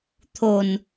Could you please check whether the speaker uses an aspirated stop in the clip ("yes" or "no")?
yes